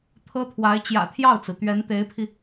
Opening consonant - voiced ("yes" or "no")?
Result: no